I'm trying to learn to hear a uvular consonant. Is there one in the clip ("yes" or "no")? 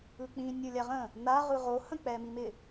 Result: yes